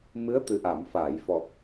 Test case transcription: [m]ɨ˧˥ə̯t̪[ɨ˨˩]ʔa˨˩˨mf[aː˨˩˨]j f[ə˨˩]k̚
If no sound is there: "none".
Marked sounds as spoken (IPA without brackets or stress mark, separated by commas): m, ɨ˨˩, aː˨˩˨, ɔ˨˩